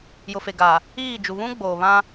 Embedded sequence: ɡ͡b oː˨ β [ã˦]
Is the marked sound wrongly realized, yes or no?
no